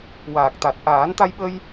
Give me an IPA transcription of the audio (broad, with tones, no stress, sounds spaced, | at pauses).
w aː˨˩ k̚ t̪ a˨˩ t̚ ʔ aː˨˩˦ n t̪ a˧ j ɓ ə˧ j